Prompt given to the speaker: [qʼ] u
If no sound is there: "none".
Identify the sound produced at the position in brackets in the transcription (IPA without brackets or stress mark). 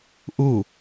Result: ʔ